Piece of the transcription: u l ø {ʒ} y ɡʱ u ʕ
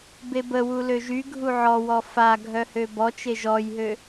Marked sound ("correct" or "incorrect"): correct